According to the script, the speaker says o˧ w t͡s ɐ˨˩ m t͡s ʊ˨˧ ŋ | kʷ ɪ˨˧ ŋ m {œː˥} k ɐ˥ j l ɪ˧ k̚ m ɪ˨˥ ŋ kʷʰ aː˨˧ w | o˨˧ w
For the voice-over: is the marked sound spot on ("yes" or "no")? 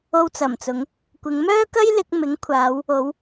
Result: yes